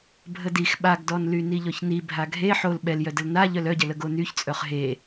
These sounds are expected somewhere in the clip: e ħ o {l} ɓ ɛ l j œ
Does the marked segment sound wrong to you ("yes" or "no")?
no